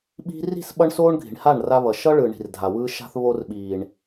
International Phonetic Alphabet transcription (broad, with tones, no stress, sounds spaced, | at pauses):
ɓ i̤˦ r i̤˦˨ s ɓ ʌ˧ ɳ s oː˦ ɳ ɡʱ i̤˨ ɳ h a˦˨ ɳ r a˧ β ʌ˨ ʃ ʌ˦ ɭ ɯ˨ ɳ i̤˨ r dʱ a˨ w ɯː˧ ʃ a̤˧ θ β o˧ r ɓ iː˨ ɳ